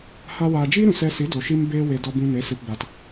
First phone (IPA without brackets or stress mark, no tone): h